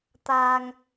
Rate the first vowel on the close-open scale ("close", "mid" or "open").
open